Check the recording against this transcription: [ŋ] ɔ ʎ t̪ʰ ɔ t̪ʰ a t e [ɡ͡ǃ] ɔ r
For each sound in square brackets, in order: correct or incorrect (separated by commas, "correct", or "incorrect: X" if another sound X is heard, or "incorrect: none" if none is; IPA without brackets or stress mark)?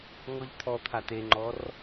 correct, incorrect: ŋ͡ǃ